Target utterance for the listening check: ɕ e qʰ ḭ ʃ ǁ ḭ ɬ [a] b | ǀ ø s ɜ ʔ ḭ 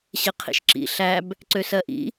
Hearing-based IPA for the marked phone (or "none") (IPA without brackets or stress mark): æ